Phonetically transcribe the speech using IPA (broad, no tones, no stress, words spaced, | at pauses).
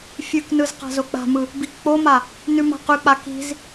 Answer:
fʲʉknɯz qa̤zok͡pa̤mɯ | bikk͡poma | nʉma̤qʉk͡pa ki̤z